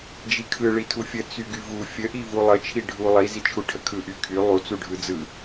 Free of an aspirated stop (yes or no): no